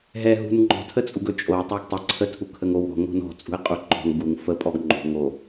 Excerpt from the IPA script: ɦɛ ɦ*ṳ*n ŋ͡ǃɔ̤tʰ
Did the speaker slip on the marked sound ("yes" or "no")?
no